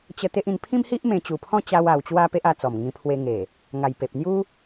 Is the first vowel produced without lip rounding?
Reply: yes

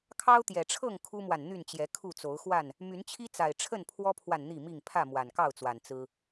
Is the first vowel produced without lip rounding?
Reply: yes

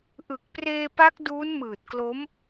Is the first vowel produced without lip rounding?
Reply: yes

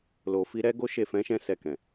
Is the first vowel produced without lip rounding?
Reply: no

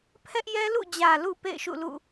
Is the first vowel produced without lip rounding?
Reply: yes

